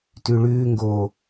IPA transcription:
tʉɭʉːŋɡoː

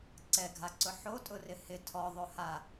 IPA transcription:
ǀɛɡʱaǀʊ ħotʼʊrɪ hɪ tʰɔðˤoha

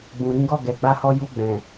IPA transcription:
ɡ͡bũ˨ɾĩ˨˦ɡɔ˦˨ ɡɛ˨ɡ͡ba˧hɔ˧ ju˧ɡ͡bɛ̃˨

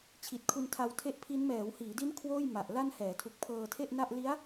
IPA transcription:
t͡ɕʰi˨˩t̚kʰu˧ntʰa˧wtʰe˦˥ʔ pʰi˦˥n mɛː˩˦whiː˩˦di˦˥n kʰwoː˥˩jma˨˩ʔ la˥˩n hɛː˩˦tʰu˨˩k̚pʰɤː˧ tʰe˥˩ʔna˥˩ʔ li˦˥a̯

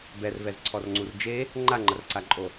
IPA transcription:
bɛrvɛzǀʰɔrŋ͡ǀur d͡ʒe | ŋ͡ǃaŋ͡ǃɐrǀaǃʼo

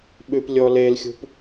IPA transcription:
ɓʉplʲɔlelxʲṳp

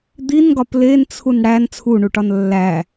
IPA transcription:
d̪inɡɒ plent͡sʰun ɽæn t͡sʰuɳuʈɒn lːæ

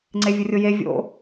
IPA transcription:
ŋ͡ǀevʲʊrʲʊje vʲo̰

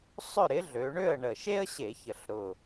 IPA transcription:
sˤʏ˥˨ɾɪ˨˥ɮø˩˧ɳø˥˨ə̯ ɳə˨˩ʃe˥ə̯ ɕe˧˩˧çə˨˩ɬɾʊ˨˩

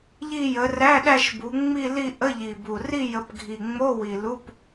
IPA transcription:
ʎi˥˧jə˨˦ ræ˧˥˧ ɗæ˥˧ʃbu˨˦ŋ͡mi˥˧li˥˧ ʔə˧˥˧ ʎi˨˩bu˨˩ ri˥˧jə˨˦pɡʱi˨˩ŋ͡mo˧˥˧ wi˨˩lu˧˥˧p

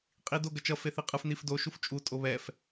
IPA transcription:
qʼido ɡʌt͡ʃʌ feθiqʼɯf nifdo ʃuft͡ʃʼu tʼoβɛf

